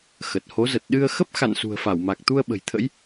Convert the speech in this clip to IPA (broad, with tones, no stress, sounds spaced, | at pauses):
x ə˨˩ t̚ h o˨˦ z ə˨˩ t̚ ɗ ɨ˧ ə̯ x ə˦˥ p̚ x a̰˧˨ n s ṳ˨˩ ə̯ f a˧˩ w m a˨˩ k̚ t̪ u˧ ə̯ ɓ ə̤˨˩ j t̪ʰ ə̰˧˥ j